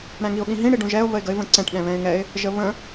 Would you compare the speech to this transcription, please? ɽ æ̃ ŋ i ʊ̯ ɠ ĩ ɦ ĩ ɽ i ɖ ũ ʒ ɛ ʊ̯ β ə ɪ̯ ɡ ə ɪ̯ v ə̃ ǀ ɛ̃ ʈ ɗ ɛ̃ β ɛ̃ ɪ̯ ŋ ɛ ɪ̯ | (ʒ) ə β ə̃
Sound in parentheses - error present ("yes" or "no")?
no